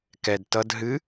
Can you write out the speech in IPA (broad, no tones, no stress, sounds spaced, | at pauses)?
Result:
k ɛ d t ʌ d ɦ ɨ